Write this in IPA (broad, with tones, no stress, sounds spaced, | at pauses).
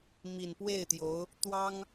m i˨˩ n p w e˥˩ ɪ̯ t̪ j o˧˥ ʊ̯ | t̪ w ɑ˥ ŋ